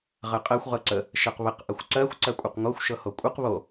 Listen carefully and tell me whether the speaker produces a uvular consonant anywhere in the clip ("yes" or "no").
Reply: yes